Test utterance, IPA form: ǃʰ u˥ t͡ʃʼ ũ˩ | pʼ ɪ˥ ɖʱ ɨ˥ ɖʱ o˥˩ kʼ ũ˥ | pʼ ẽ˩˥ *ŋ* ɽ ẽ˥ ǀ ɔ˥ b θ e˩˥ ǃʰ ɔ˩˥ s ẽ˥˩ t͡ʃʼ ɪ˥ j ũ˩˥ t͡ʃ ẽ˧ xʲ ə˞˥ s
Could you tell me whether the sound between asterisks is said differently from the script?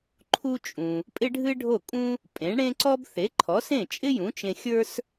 yes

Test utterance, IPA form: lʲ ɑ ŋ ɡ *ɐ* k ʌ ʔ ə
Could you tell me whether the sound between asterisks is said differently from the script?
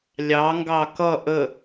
yes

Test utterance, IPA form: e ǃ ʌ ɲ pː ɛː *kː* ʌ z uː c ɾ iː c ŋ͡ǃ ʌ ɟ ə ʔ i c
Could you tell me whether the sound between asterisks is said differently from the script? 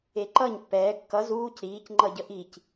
no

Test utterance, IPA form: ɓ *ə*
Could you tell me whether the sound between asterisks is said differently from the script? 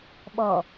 yes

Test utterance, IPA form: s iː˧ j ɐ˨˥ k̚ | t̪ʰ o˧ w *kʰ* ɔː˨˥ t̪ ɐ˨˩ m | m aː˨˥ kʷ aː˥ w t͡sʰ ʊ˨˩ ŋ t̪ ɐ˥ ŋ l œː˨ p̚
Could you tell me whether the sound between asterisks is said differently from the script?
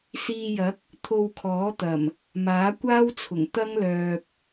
no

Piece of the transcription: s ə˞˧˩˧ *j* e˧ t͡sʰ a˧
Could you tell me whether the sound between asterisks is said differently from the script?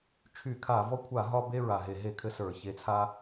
yes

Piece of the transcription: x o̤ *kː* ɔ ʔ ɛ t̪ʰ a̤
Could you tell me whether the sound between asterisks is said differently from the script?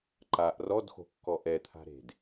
no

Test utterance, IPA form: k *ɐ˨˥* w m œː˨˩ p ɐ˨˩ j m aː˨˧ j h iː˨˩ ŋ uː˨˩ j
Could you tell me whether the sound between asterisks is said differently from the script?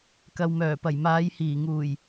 yes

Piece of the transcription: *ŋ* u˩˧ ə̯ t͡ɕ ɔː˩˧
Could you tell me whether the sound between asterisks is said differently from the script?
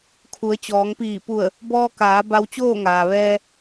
yes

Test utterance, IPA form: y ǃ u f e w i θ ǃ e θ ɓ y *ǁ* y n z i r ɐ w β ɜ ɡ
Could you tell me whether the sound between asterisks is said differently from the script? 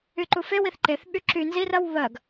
no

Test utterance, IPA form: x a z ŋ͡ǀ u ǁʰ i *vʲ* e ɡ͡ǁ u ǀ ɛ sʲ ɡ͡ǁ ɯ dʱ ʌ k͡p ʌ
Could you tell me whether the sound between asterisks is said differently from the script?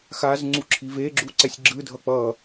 yes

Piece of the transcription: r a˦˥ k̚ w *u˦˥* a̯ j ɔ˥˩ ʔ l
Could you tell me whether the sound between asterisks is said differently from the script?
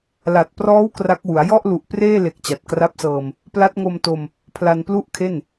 yes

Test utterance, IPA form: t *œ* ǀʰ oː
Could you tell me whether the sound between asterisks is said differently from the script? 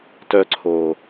no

